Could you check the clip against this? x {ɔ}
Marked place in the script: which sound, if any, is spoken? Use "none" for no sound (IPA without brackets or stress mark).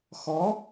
ɔ